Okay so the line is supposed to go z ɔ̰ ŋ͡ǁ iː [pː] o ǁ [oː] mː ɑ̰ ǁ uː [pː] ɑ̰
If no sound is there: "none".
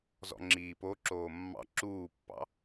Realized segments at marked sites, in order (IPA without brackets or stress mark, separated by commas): p, oː, pː